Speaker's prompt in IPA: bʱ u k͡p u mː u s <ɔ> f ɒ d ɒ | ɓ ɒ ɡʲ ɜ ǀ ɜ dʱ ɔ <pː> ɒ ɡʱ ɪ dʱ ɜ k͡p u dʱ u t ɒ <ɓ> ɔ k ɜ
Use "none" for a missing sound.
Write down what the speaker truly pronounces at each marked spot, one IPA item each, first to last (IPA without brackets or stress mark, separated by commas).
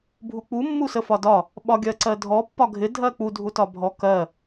ə, pː, bʱ